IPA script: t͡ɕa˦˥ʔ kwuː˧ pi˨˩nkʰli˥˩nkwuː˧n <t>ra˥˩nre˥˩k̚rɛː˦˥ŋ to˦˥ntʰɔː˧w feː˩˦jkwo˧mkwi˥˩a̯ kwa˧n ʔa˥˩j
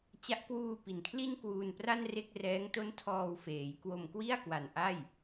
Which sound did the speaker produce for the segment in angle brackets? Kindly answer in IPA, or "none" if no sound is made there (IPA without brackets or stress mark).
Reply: p